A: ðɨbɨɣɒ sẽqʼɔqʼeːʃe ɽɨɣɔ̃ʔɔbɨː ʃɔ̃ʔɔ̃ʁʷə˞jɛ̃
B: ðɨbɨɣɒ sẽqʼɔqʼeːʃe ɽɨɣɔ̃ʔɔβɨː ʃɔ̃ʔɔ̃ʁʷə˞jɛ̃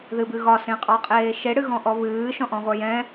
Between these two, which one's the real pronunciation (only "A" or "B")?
B